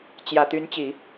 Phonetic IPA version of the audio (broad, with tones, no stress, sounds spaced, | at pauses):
t͡ɕ j ä˨˩ t̪ y˧˥ n t͡ɕ i˨˩˦